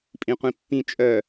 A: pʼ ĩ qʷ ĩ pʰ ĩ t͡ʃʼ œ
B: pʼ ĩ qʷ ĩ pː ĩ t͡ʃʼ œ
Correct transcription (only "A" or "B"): B